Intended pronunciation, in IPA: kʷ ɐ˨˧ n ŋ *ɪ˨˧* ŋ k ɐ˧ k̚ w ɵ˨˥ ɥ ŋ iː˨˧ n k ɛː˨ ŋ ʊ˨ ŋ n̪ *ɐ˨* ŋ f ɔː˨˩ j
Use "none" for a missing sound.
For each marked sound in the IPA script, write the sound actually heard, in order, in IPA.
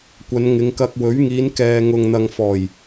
ɪ˨˧, ɐ˨

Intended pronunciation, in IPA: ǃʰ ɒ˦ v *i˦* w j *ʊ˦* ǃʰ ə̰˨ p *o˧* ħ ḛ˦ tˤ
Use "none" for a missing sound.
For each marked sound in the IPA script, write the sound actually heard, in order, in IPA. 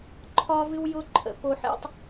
ɨ˦, ʊ˦, o˧

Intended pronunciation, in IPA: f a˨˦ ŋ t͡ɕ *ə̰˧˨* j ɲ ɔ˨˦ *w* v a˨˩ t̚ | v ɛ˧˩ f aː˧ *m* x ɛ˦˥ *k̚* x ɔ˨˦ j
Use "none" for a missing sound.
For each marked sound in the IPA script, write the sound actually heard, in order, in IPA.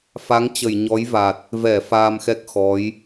ə˧˩, j, m, k̚

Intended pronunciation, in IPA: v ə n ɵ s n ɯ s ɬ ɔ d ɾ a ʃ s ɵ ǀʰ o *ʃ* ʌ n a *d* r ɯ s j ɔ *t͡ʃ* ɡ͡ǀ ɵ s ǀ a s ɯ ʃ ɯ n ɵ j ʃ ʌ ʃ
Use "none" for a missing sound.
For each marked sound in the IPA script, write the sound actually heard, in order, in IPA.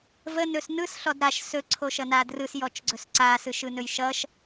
ʃ, d, t͡ʃ

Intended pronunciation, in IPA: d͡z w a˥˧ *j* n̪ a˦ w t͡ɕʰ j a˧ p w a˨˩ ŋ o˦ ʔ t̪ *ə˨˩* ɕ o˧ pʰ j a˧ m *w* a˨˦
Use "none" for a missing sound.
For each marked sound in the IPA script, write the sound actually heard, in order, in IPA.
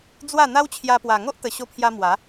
none, ə˨˩, w

